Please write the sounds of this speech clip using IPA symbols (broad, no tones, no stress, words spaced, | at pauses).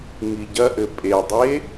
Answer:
ŋiɟɐʔɘ pʼedˤe